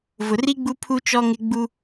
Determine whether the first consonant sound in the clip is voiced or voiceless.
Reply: voiced